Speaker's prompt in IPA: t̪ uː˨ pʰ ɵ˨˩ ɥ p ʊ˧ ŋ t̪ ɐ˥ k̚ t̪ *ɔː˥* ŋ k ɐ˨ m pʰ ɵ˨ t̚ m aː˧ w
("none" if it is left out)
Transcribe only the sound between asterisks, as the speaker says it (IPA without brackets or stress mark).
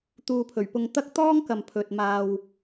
ɔː˥